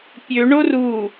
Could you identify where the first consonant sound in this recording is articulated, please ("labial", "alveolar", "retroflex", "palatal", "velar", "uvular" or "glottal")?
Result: labial